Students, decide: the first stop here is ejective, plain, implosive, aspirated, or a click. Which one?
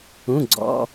click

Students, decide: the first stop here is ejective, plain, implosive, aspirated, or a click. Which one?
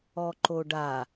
click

